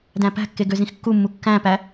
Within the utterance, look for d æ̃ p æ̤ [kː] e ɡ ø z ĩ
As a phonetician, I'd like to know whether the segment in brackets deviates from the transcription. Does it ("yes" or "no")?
no